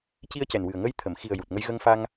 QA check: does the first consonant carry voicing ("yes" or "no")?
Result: no